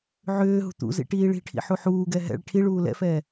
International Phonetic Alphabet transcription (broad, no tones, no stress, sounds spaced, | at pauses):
ʕ ʏː ɦ ṳ t̪ ṵ z ḭ ʈ iː ɭ i̤ ʈʰ ḭ ħ u ħ uː ɡ ɛ ɦ ɛ̰ ɭ ʈʰ i ɭ uː l ɛ̰ f ɛː